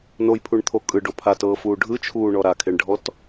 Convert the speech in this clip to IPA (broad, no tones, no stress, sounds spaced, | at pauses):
n o j pʰ u ɳ t̪ʰ o kʼ ɯ ɖ o pʰ a t ɤː f uː ɖʱ ɯ t͡ʃʰ uː ɳ ɔ ɾ a kʰ e ɳ ɖʱ ɔ t